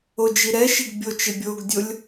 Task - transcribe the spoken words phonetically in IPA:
od͡ʒiɾɛʃiɡ bʲot͡ʃɪ bʲoɡdʲolʲ

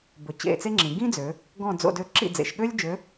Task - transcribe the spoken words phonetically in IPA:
bɵ˩˧ t͡ɕḛ˦˨t͡se˥ŋ͡ǁĩ˩˧ ɡĩ˥d͡zø˩˧ | ɡɔ̃˦˨d͡zo̰˦˨dø˦˨ ǁḭ˦˨d͡zḛ˩˧ʃɠø˥lʲd͡ʒø˨˥

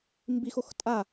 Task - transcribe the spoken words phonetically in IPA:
mbixox tʼa

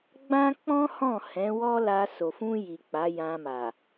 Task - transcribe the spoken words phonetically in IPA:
ɡ͡bã˦k͡pɔ̃˦hɔ̃˦˨ hɛ̃˨˦wɔ˦la˧ so˨fũ˧ji˨ k͡pa˨˦jã˧ma˨

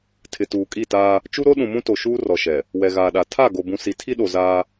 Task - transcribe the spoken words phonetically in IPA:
tʰɪ˨tuː˨kʼi˦˨taː˦ | t͡ʃu˦ɾo˦ ɗũ˨mũ˦to˨ ʃuː˦ rɔ˨ʃɛ˨ | wɛ˨ɣaː˨ɗa˨ tʰa˦˨ɡo˨ bũ˨si˨tʰi˦ɗo˨ zaː˦

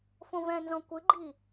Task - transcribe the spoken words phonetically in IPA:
fõvɛ̃nzɔ̃ kʷɨɡ͡ǃi

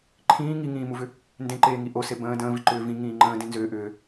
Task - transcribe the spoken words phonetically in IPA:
ǃʰĩː ŋiŋĩːmuvʏ | ndẽǃeːŋi ʔose bə̃ː də̃ːvi ǃʏːvĩ ŋĩːŋ͡ǃə̃ː dĩnzʏː ʔʏː

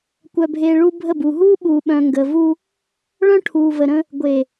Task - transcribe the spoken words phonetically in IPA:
kʷœ˨bʱeː˨ ɭuː˦bʱə˦˨buː˨ ɦuː˦ɓuː˨ɓœ̃˨ ŋɡə˨ vu˦ | ɭœ̃˦ʈʰuː˨və˨ɾə̃˦ | ɡʷe˨

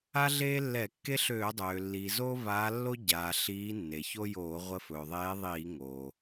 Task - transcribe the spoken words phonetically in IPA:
a˦ɮeː˦lːɛ˧˩˧ kːe˦ɬøː˧˩˧dˤøː˩lːiː˩ zo˦vaː˨˦lːo˦ ɟaː˩ ɬiː˨˦nːe˩ço˦joː˧˩˧ ʁʷə˨˦fɵː˩ðˤeː˨˦ðˤiː˧˩˧ ŋoː˩

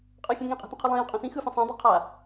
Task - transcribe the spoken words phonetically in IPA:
qʼʌxʲẽ ŋĩqʼe̤tũqʰo lˠĩjẽqʼõ sĩ xɯfẽ sˤãdˤi qʰa

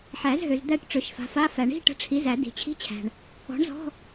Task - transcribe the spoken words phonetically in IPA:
ħæ˨˩˦zɦø˨z d̪æ˦˨ʈ ʈ͡ʂø˨˥ʃfa̤˨˥fa˧˥˧ fæ˨˩˦ɳi̤˧˥˧ ʈə̤˧˥˧ʈ͡ʂʰi˨˥zæ˨˩˦ di̤˨t͡ɕʰi̤˧˥˧t͡ɕʰæ̤˨ɳ | ɔ̤˨˥ɳzɔ̤˧˥˧

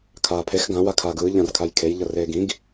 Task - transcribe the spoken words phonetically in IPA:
kʰaːpʰex ɡã wakʰaːɡɯː ʎãrkʰajkʰej ʎʌreːɡĩɡ

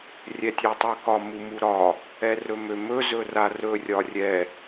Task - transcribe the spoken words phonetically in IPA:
rʲɛtʲatˤɯkɒ mumuɾɒ | ɛrɵmømɵ zɵrarɵ rʲɒrʲɛ

